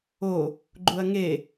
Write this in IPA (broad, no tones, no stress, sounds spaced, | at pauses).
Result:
o | ɡ͡ǃ u ɐ̯ ŋ e